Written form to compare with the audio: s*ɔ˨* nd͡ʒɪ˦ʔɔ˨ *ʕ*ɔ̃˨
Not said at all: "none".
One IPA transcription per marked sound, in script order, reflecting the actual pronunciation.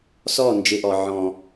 ɔ˦˨, ʕ

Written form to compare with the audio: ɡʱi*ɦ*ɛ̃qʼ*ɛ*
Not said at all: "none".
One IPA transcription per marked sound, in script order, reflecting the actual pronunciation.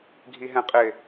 ɦ, ɪ

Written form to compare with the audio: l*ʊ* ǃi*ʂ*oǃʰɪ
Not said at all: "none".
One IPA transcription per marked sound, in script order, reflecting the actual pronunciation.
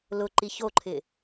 ʊ, ç

